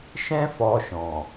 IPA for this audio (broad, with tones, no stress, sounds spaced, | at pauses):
ʃ ɛ̃˦ f ɔ˧ ʃ ɔ̃˨